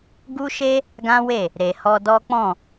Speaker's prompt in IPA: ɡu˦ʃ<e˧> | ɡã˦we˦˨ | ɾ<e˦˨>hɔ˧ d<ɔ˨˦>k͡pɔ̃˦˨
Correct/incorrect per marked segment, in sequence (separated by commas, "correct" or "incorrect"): incorrect, incorrect, incorrect